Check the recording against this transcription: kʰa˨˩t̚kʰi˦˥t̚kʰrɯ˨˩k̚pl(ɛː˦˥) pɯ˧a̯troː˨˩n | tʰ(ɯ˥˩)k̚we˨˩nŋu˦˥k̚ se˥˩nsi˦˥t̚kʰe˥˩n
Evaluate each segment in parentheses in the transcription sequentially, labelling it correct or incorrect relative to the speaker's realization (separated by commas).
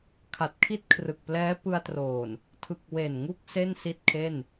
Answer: correct, incorrect